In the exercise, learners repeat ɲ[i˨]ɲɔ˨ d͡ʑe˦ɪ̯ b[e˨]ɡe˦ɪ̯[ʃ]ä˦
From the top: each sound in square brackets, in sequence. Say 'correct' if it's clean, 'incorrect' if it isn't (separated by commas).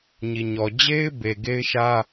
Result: correct, correct, correct